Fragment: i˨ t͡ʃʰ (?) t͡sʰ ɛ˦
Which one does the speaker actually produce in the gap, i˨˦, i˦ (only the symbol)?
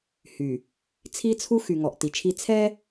i˦